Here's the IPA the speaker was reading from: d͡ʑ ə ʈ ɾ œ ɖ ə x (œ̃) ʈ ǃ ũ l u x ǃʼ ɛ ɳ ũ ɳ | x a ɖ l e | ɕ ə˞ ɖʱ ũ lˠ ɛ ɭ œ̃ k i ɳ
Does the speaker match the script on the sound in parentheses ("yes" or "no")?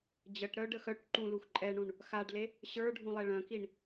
no